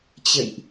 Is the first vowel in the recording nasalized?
no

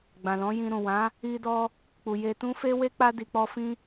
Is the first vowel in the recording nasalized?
yes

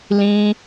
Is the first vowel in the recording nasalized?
yes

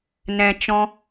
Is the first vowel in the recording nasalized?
yes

